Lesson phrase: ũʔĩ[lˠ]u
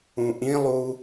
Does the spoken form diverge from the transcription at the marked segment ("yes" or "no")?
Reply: no